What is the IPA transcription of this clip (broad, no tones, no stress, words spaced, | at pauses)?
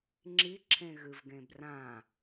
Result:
ŋ͡ǁi ǁʰẽɣɨvɡẽbrã